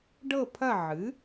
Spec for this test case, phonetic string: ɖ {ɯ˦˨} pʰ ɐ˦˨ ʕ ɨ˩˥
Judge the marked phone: incorrect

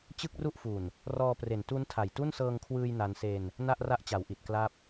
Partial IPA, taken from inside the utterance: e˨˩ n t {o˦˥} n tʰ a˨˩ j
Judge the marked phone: incorrect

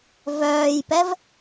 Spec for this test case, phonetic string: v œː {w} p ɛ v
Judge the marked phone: incorrect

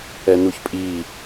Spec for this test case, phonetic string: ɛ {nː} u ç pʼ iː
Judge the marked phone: incorrect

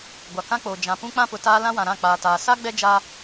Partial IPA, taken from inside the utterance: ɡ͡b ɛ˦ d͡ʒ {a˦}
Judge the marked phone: correct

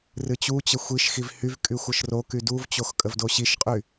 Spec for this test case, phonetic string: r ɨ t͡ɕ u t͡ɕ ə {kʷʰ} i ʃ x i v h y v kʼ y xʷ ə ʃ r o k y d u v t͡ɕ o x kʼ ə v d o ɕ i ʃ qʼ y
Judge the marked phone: incorrect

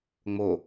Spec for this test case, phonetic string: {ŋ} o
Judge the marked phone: incorrect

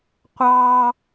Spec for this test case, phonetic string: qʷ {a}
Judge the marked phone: incorrect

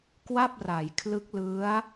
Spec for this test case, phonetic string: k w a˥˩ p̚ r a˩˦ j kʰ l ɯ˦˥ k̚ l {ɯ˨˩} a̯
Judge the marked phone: incorrect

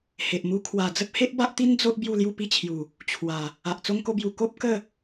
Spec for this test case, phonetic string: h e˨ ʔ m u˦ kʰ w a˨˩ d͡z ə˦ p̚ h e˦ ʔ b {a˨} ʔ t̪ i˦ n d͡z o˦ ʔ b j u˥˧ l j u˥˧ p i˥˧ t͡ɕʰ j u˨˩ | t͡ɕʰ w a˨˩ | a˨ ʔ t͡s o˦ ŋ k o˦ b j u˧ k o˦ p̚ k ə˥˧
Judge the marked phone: incorrect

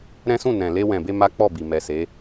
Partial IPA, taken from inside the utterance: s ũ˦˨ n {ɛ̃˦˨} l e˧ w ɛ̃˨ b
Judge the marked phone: incorrect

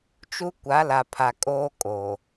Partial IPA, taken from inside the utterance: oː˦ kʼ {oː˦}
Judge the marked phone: incorrect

